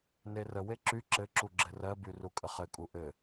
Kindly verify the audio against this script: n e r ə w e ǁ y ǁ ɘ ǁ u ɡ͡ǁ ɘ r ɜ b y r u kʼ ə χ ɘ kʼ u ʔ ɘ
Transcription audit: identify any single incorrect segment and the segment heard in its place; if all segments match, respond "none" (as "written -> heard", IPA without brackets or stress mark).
none